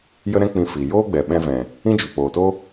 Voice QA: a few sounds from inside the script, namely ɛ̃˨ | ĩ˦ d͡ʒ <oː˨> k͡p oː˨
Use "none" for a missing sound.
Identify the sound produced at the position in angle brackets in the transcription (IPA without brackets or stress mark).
o˨